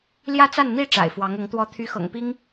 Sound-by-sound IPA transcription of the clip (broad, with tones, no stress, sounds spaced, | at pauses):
l j ä˥˧ t͡s a˥˩ n n̪ i˧˥ ʈ͡ʂ a̰˨˩ ɪ̯ f w ɑ˧˥ ŋ ʊ˧˥ ŋ t̪ w ɔ˥ t̪ʰ y˧˥ x ɤ̰˨˩ ŋ p i˥ ŋ